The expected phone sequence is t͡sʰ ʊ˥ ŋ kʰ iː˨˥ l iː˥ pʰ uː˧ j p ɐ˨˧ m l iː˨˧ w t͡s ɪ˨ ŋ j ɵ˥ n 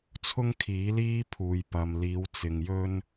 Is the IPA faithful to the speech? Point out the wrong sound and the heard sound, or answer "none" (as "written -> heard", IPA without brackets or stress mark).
ɐ˨˧ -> ɐ˧